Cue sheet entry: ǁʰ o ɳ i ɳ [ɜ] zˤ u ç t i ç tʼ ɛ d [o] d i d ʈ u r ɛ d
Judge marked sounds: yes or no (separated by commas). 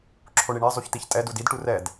no, no